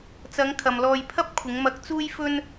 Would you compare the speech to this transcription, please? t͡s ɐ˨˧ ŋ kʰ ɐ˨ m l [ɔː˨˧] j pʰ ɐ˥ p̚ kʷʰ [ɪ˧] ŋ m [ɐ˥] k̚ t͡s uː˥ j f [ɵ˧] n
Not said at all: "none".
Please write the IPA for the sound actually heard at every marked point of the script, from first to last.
ɔː˧, ɪ˨˧, ɐ˧, ɵ˥

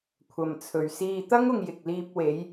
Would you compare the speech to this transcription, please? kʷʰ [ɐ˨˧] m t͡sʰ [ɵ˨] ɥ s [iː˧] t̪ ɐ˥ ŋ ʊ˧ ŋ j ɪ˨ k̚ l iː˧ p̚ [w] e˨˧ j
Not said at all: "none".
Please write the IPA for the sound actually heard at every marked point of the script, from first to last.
ɐ˨, ɵ˨, iː˧, w

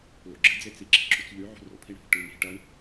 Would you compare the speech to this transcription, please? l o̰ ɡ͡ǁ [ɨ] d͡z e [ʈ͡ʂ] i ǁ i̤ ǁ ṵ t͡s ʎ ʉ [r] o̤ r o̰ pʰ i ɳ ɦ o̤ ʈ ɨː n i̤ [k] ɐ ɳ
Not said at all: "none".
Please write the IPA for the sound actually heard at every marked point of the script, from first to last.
ɨ, t͡s, ʕ, ʈ

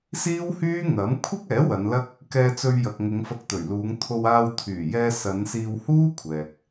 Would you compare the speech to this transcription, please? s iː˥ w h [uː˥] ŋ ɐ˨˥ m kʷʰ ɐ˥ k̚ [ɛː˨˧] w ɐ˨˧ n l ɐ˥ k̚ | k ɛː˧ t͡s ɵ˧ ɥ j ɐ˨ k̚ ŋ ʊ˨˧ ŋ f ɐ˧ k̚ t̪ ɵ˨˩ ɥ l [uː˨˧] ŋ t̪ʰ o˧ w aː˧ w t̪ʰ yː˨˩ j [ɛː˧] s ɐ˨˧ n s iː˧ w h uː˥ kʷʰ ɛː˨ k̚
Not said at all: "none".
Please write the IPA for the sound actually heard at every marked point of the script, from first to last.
yː˥, ɛː˨˥, uː˨˧, ɛː˧

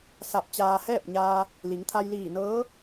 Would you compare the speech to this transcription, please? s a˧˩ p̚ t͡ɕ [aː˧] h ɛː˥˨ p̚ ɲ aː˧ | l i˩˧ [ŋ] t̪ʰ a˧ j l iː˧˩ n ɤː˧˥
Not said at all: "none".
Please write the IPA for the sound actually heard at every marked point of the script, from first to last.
aː˧, ŋ

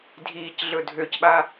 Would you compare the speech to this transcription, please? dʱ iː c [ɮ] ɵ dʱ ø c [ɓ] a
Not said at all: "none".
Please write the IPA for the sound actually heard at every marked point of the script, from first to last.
ɮ, ɓ

